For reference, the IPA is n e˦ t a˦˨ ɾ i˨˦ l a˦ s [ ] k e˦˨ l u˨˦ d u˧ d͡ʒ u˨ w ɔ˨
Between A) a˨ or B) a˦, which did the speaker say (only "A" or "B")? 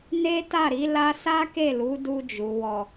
B